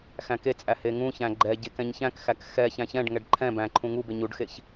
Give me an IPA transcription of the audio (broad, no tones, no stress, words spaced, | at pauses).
xæ̃ket͡sʼæ heŋũçæ̃ ɡ͡ǃɛɟek ɛ̃ɲçæ̃kxæk xɛçæ̃ çɛ̃ɖŋɛɖ ǃʰɛ̃ bæ̃ǃʰũ ŋube ɲuɖxeç